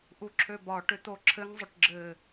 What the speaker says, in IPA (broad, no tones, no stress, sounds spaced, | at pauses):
ʔ u ǁʰ ø b ɒ ʈ ʏ t̪ o ǁʰ ɘ ŋ zˤ ʏ ʈ ɡ͡ǁ ɘ